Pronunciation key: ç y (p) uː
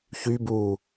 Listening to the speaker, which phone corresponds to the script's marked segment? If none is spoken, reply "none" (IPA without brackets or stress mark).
b